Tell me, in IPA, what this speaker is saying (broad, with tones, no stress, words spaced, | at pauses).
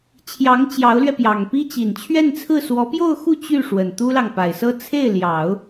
t͡ɕʰjɑ˧˥ŋ t͡ɕjɑ˧˥ʊ̯lɥɛ˧pjɑ˨˩ŋpi˥ t͡ɕi˨˩nt͡ɕʰɥɛ˥˧nt͡sʰɹ̩˥˩ swɔ˧˥pjo˥˧ʊ̯xu˥˧ t͡ɕy˥˩ʂwə˨˩n t̪u˥lɑ˨ŋpa˨˩ɪ̯sɤ˥ t͡sʰe˥˩ɪ̯ ljɑ˨˩˦ʊ̯